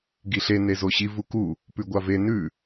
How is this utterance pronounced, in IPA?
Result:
ɡ i ɬ e n e z o ɕ i v u k u | p ʉ ɡʷ a v e n ʉ

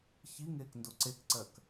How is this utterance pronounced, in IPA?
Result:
ç i ŋ eː k n d o ǀ e k ǀ ɜ k

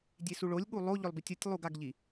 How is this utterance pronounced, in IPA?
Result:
dʲ e s u ɭ o lʲ ɠ u lˠ o ʎ ʏ lˠ b i tʲ o tʲ lˠ u ɡ a ɡ ʎ i

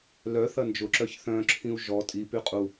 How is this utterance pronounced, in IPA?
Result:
l œ θ ɐ n d͡ʒ ʊ ǁ œ ç θ œ̃ ǁʰ ĩ u̯ ʒ ɔ tʼ i p y qʼ u

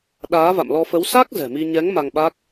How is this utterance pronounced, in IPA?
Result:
ɗ aː˨˦ v a̰˧˨ m l ɔ˧ f ə˨˦ w s a˦˥ k̚ z ɛ̤˨˩ m i˧ ɲ ɛ˨˦ ŋ m a˧ ŋ ɓ a˦˥ k̚

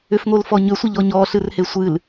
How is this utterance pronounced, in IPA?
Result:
ʏ f ŋ o l f ɔ ɲ ʏ sʷ ə ʎ ɔ ɲ ɔ ɬ ɨ r h e sʷ ɨ l

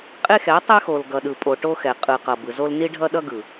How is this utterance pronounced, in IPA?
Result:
qʼ e˦ x ɛ˨˦ tˤ ɛ˦ x o˨ l ɡ ʌ˨ ɗ ɯ˨ pʼ o˨ ʈ o˦ x ɛ˨ qʼ ɯ˨ q ʌ˨ b ɯ˨ z o˦ l n i˦ ɖʱ ʌ˦ ɗ ʌ˦ ɡ ɯ˨

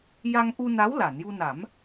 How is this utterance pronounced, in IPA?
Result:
j a˧ ŋ ʔ u˧ n a˧˥ w l a˨˩˨ n j u˧ n a˨˩˦ m

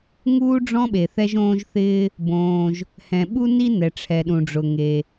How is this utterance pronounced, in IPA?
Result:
ŋ uː˥ ɖ͡ʐ ɔ̃˥ ɓ e˩ θ ɛ˥ ʒ õː˥ ʒ θ ɪː˥ | b õː˩ ʒ | h ɛ̃˩ ɓ u˥ n i˥ n ɛ˩ ʈ͡ʂʰ ɛ˩ ɗ ũ˩ ɖ͡ʐ ʊ˩ ŋ e˩

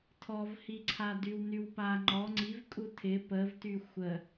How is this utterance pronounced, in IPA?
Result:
tʰ ɔ v h i ǀʰ a d y w n y w p a ŋ͡ǃ ɔ ŋ͡ǀ i v kʼ u tʰ ɪ p ə v t y xʷ ə

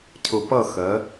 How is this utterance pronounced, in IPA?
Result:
cʰ ʊ˨ p ʌ˦˨ x ɜ˨˦

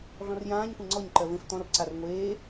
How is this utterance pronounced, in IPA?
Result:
ɮ ɔ̃ r j ãː ɲ kʷ ẽ ŋ͡ǀ ɔ ɲ ǃ ɜ v ẽ f t̪ ɔ̃ r ǀ a r ŋʷ eː

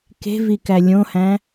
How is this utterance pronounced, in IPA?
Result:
k e̤ v i k æ lʲ õ h æ̃

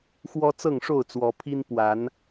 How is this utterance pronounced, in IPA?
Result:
x w ɔ˦ t͡s ɤ˥˨ ŋ ʂ o˥˨ ʊ̯ t͡s w ɔ˨˦ pʰ i˦ n p w a˨˦ n

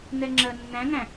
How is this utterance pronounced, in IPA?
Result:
n ɛ ŋ͡ǁ ɜ nː æ̃ ŋ æ̃

